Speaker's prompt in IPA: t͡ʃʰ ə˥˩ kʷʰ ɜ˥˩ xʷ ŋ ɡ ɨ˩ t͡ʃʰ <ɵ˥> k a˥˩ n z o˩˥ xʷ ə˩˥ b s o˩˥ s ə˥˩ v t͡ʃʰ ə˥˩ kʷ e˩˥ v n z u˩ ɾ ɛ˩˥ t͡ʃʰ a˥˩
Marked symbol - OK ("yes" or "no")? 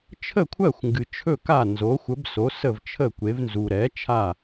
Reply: no